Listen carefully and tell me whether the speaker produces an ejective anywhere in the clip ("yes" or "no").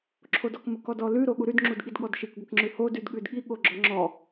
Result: no